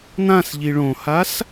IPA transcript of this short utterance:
n̪ ã s ʎ i ɭ õ h a s

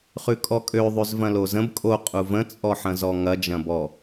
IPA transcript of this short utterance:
χ ʉ kʼ ɔ kʼ ø ðˤ ʉ z v ɐ̃ l o z ə̃ b kʼ o qʼ u v ə̃ t͡sʼ ɔ ħ ɐ̃ z ɔ ŋ ɐ d͡ʒ ɐ̃ b ɔ

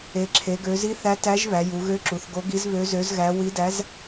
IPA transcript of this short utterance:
e˩˧ ǁʰ e˩˧ ɡ ø˩˧ z i˧˥ θ æ˧˥ t æ˧˥ ʒ β æ˩˧ j u˩˧ ɣ ø˧˥ ǁ u˩˧ θ ɡ o˧˥ ɡ i˧˥ z β ø˧˥ z ø˧˥ z ɣ æ˧˥ w i˧˥ d æ˧˥ z

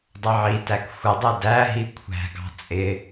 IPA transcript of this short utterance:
dˤ ə ʕ i t æ k xʷ ɪ dˤ ɛ d æ ɦ i kʷʰ æ̤ ɡ ɑ̤ t͡sʼ ɪ

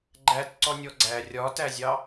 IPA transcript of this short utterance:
ɡ͡ǃ æ t ǀ ɔ nʲ ɔ ɡ͡ǀ æ rʲ ɒ t æ zʲ ɑ

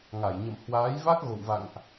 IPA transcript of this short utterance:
ŋ a˧˩ j ɲ ə̰˧˨ m h w aː˨˦ j v a˦˥ k̚ ɣ o̰˧˨ w v a̰˧˨ ŋ ʔ

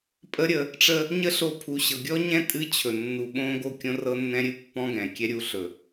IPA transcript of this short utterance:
pʼ ə˦ ɾʲ ə˧ | ʈ͡ʂ ə˧ | ɲ ə˦ ɬ o˧ pʰ u˨ ɕ ɤ˨ ɡʲ ɔ˦ ɲ ɛ̃˦ tʼ ɨ˦ t͡ɕʰ ɵ˨ nː u˨ ɓ õ˧ ɡ o˦˨ kʲ õ˧ r ɤ˧ nː ɛ̃˧ ɾʲ ɨ˦ pː ɔ̃˦ ɡ ɛ̃˨ kʲ ɛ˦ ɾʲ u˧ ɬ ɵ˨

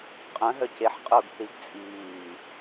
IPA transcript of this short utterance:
qʼ œ̃ ɦ œ c e ħ qʼ o ɡ θ i ɡ t͡sʼ iː

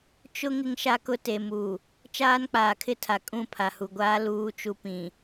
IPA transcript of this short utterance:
t͡ʃ ʊ˦ ŋ ɪ˦ ŋ ʃ a˦ k ʊ˦ t e˨ m u˨ | t͡ʃ aː˦ n k͡p aː˨ kʰ ɪ˦ tʰ a˨ kʼ ũ˦˨ pʰ a˨ h u˨ ɡʷ aː˦ l uː˦ t͡ʃ u˦ p ĩ˨

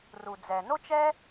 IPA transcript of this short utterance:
r u˩ d͡z ɛ˩ n o˥ t͡ʃ ɛ˥

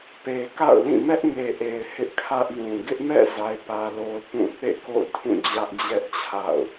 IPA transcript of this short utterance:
p e˨ k a̰˦˨ ʊ̯ l ĩ˦˨ m ɛ˦ ʔ ŋ e˨ ʔ e˨ ɪ̯ h ɪ˦ ʔ kʰ ä˦ ʔ j ũ˨ ɡ ɪ˦ ʔ m ɛ̰˦˨ z a˦ ɪ̯ p ä˦ l o˦ ʊ̯ p ũ˦˨ θ ḛ˦˨ k o̰˦˨ ʊ̯ tʰ ũ˦˨ d͡ʑ ä˦ ʔ d͡ʑ ɛ˦ ʔ t͡ɕʰ a̰˦˨ ʊ̯

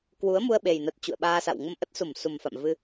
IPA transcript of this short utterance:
k w u˨˦ ə̯ m u˧ ə̯ ɓ e˨˩ j n ə˨˩ t̚ t͡ɕ ṵ˧˨ ə̯ ɓ aː˧ s a̰˧˨ w ŋ ə˧ m ʔ ə˦˥ t̚ s u˧˩ m s u˨˩ m f a̰˧˨ m v ɨ˧

